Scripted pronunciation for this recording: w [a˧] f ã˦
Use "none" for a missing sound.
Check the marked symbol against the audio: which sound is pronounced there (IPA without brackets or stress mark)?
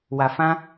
a˧